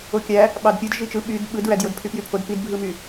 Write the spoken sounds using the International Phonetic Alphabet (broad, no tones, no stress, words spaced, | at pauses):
okʲæ | ɓɑdpʲɯd ʒit͡ʃɯ ɓyd ɓɯdɹæd jodpʰypjypʰod pidbʱɯmy